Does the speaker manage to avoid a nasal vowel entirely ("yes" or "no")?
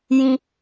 no